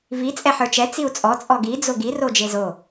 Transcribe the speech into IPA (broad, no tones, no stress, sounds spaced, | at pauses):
v i t͡sʼ ɛ ħ ə˞ t͡ʃ ɛ t͡s i u̯ t͡sʼ ɔ t͡sʼ ɔ ɡ i d͡z o ɡ i r o d͡ʒ e z o